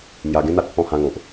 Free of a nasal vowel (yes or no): no